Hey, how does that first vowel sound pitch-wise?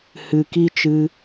low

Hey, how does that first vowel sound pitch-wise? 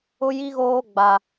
high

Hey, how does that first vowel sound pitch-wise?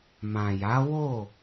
low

